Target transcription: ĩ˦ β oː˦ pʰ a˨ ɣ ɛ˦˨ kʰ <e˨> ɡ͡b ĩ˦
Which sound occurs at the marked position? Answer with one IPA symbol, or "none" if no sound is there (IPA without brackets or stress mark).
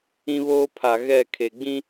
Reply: e˨